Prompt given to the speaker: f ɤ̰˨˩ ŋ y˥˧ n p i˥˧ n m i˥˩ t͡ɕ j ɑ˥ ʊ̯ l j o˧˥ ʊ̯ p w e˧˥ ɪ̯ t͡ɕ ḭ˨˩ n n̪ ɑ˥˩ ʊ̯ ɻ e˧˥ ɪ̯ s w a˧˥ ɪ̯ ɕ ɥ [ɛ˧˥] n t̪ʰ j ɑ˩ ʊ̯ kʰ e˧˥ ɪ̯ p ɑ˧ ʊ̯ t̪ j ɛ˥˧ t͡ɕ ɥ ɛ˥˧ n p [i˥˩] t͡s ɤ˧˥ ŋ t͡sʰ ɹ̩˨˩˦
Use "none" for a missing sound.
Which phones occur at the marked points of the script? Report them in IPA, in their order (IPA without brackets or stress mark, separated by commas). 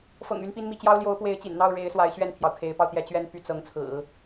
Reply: ɛ˥˩, y˥˩